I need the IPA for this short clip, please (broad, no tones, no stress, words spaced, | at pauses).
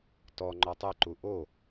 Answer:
tɔ ŋ͡ǃɔtˤɘǃu ʔo